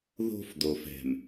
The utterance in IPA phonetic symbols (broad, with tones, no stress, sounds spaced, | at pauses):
ð o̤˦ f d o˨ f ɛ̤˨ m